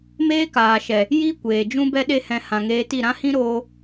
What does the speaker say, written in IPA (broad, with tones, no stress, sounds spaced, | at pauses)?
m eː˦ k aː˨ ʃ ɛ˨ | j i˦ kʷ eː˨ d͡ʒ ũ˦ b ɛ˦ ɗ e˦ h ɛ̃˧ h ã˨ ŋ eː˧ t i˦˨ ɾ ã˦ h ĩ˦ ɾ oː˧